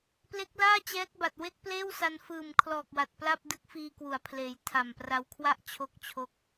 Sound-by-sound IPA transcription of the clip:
p l e˦˥ k̚ l aː˥˩ t͡ɕ ɛː˦˥ k̚ b a˨˩ t̚ w e˥˩ k̚ p l eː˥˩ w s a˧ n f ɯː˨˩ m kʰ l ɔː˨˩ k̚ w a˨˩ t̚ p l a˥˩ p̚ d ɯ˦˥ k̚ f iː˧ k w u˩˦ a̯ pʰ l eː˩˦ j tʰ a˨˩ m p r a˧ w kʰ w a˥˩ ʔ t͡ɕʰ o˦˥ k̚ t͡ɕʰ o˦˥ k̚

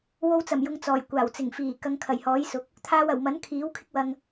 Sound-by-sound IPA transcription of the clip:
w o˧ w t͡s ɐ˨˩ m j ʊ˨ ŋ t͡s ɔː˨˩ j kʷ aː˨˩ w t͡s ɪ˨˩ ŋ f iː˨˩ k ɐ˧ ŋ kʰ ɐ˨˩ j h ɔː˨˥ j s ʊ˨˥ k̚ | t̪ʰ aː˧ w ɐ˨˩ w m ɐ˨˥ n kʰ iː˨˥ w kʰ ɪ˥ k̚ w ɐ˧ ŋ

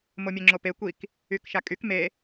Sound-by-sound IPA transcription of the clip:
m o mʲ e ŋ͡ǁ o p e kʷ i k | y k ʃ a kʼ y k m e

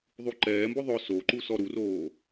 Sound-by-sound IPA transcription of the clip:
ðˤ u ǃ ɛː m b ʊ ðˤ ʊ s o ǃ u s ɔ ɾ u r oː

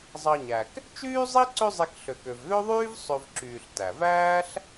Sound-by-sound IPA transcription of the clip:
zˤ ɑ˨ ɲ æ˩ k | t͡ʃ yː˥ zˤ i˥ ǀ ø˦ zˤ i˨ k ɬ ø˩ k ø˩ v ð ø˥ ðˤ yː˥ v sˤ ø˨ v ǁ yː˩ ɬ t æ˩ v æː˥ ɬ

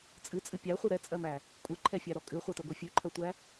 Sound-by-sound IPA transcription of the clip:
t͡sʼ ɨ t͡sʼ ɨ pʲ æ χʷ ɨ ɾ ɛ t͡sʼ ɜ m æ | kʷʼ ɨ ǃʰ ɛ fʲ æ ɾ ɔ kʼ ɨ χʷ ɜ t e ɡʷ e fʲ ʉ ǃʰ ɜ tʷ æ

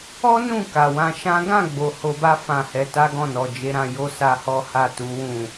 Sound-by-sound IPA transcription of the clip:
ɔ˦ n ũ˦˨ k a˨ w ã˧ ʃ ã˦ ɡ ã˦˨ ɡ͡b o˨ h o˧ b a˦ f ã˦˨ h ɛ˧ t a˦ ɡ ɔ̃˦˨ n ɔ˨ d͡ʒ e˨˦ ɾ ã˧ j o˦ s a˦ h ɔ˦ h a˦˨ t u˨˦ w ũ˦˨

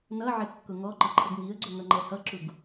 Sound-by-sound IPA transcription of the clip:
n ʌ ʕ ɪ kː ʊ ŋ ɔ ǃ ɪ ǃʰ ə ɡ ŋ i ə̯ ɡ͡ǀ ʌ ŋ ʌ ŋ͡ǃ ɛ h ʌ ǁ u ɡ

